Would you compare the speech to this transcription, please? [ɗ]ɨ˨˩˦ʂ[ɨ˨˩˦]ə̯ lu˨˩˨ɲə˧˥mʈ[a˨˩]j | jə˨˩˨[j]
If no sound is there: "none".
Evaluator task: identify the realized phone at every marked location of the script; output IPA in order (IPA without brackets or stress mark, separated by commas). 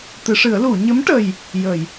t̪, ɨ˨˩˦, ə˨˩, j